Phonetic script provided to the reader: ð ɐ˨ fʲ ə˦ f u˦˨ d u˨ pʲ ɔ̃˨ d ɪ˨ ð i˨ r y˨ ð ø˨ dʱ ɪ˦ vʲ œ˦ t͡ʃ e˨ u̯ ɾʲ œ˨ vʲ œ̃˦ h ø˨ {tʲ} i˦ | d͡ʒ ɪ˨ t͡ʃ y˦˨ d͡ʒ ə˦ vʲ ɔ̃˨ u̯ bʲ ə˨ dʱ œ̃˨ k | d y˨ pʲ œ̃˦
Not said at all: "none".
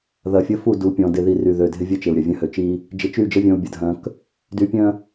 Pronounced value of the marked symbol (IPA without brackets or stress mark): t͡ʃ